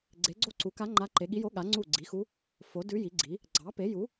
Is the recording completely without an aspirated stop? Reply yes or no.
yes